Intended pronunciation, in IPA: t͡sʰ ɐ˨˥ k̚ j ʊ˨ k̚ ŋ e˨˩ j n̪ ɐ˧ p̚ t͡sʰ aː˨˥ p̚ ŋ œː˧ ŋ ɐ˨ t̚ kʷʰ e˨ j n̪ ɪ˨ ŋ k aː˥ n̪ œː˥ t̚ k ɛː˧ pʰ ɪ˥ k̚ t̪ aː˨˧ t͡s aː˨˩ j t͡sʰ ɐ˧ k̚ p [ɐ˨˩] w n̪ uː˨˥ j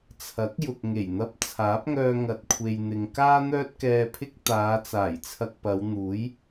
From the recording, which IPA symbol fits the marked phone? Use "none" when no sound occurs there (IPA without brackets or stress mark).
ɐ˨˧